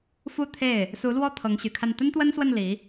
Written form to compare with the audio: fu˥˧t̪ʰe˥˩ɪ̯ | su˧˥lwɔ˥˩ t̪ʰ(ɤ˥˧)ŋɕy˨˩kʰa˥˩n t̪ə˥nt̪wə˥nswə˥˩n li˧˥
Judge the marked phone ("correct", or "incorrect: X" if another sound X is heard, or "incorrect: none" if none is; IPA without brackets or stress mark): incorrect: ɤ˧˥